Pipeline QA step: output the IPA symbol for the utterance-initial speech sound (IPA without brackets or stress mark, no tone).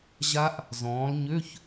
ʑ